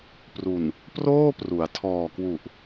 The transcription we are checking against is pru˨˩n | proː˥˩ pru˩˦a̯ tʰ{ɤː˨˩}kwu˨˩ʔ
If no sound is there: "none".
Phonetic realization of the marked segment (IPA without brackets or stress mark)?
ɔː˨˩